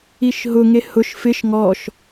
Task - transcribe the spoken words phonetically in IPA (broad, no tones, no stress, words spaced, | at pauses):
iʃɦʊŋe hʊʃ fɪʃ ŋɔʃ